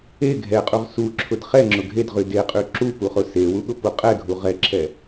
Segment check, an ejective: present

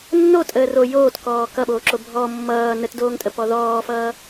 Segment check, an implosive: present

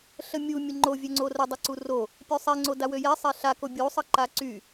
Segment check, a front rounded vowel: present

